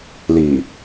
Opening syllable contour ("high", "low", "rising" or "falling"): low